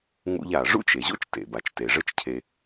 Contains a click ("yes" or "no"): no